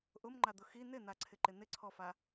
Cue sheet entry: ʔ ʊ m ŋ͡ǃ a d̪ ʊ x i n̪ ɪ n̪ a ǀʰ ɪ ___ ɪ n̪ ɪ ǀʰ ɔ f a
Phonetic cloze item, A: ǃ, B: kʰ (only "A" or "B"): A